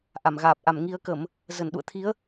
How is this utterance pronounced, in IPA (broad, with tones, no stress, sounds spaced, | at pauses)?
ʔ a˧˩ m ɣ aː˨˩ p̚ ʔ a˧˩ m ŋ i˧ ə̯ k ə˧˩˨ m | z ə˧˩ n ɗ ṵ˧˨ ə̯ t̪ʰ i˨˦ ə̯